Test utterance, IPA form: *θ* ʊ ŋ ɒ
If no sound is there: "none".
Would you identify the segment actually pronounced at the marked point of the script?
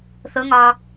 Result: θ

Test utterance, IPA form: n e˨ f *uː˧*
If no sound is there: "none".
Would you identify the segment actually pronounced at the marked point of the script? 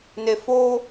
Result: oː˧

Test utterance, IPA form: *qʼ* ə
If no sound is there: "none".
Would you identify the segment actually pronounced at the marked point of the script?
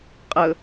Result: qʼ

